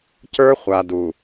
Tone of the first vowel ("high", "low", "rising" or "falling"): high